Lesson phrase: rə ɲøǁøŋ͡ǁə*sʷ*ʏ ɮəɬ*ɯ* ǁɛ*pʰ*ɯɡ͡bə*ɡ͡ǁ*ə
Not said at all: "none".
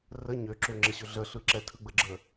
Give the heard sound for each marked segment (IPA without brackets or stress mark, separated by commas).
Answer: ɕ, ɯ, tʰ, ɡ͡ǁ